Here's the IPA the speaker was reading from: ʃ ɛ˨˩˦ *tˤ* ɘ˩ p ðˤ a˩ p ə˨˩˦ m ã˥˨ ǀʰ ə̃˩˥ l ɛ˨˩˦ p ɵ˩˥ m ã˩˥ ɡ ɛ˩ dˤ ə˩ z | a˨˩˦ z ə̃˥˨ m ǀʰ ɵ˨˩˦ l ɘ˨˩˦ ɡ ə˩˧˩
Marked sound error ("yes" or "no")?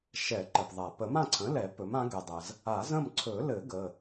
yes